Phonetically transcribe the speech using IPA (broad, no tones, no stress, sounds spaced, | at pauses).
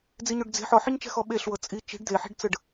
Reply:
d͡z i ɲ o ɖ d͡z e̤ ħ ɔ ħ i ɲ t͡ʃ ɛ̤ x ɔ ɓ e ɬ w ɤ t͡sʼ i t͡ʃ i̤ ɖ d̪ e ħ i̤ ɖ t͡s ɯ ɖ